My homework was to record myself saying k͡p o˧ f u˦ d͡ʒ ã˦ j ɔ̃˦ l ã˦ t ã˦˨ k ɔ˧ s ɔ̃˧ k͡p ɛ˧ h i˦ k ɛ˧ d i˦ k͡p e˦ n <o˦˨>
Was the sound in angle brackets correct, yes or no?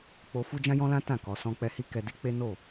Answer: yes